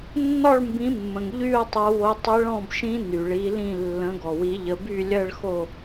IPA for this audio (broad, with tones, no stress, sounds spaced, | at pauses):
nː ɔ˥˧ ɭ m b ĩ˨˦ mː ə̃˩ ŋ ʎ y˥˧ ʊ̯ tˤ o˨˦ w o˨˦ tˤ ɘ˦˥ ɭ ɔ̃˥˧ b ʃ ĩ˦˥ n y˩ ɭ i˨˦ l ĩ˥˧ lː ə̃˨˦ ɡ ɔ˩ w i˨˦ ʎ ə˨˦ b y˥˧ lʲ ɜ˥˧ ɭ x o˥˧